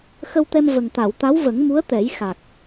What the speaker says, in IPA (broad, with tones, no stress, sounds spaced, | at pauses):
x ə˧ w t̪ ɛ˧ m v ə˨˩ ŋ t̪ a˨˩˨ w t̪ a˧˥ w v ə˨˩˦ ŋ m u˧˥ ə̯ t̪ ɛ˨˩˦ j x a˨˩ k̚